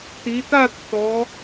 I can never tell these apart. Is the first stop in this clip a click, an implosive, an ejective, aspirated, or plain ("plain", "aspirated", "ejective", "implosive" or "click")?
plain